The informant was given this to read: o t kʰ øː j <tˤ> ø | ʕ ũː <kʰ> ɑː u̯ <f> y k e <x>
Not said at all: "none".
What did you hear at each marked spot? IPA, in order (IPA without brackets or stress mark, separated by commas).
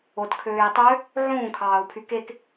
tˤ, kʰ, pʰ, k